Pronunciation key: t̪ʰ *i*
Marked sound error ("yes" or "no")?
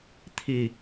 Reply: no